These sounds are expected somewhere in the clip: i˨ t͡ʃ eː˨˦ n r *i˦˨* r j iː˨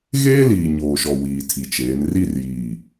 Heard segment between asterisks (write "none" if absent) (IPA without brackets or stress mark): i˦˨